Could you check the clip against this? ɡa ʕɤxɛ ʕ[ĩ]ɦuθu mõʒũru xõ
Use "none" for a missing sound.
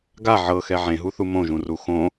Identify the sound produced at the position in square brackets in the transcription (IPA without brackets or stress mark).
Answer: ẽ